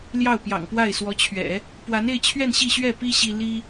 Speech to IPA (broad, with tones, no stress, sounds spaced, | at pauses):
l j ɑ˥˩ ʊ̯ p j ɑ̰˨˩ ŋ p w a˥˩ ɪ̯ s w ɔ˧˥ t͡ɕʰ ɥ ɛ̰˨˩˦ | p w a˧˥ n e˥˧ ɪ̯ t͡ɕʰ ɥ ɛ˥˧ n ɕ i˥˧ ɕ ɥ ɛ˥˩ p i˥ ɕ i˥ l i˥